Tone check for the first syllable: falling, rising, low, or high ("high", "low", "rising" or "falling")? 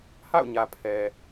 falling